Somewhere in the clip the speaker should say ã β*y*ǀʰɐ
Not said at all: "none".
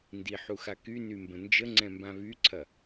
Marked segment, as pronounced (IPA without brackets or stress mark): y